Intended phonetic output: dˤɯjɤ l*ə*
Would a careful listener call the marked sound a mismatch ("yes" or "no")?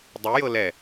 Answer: yes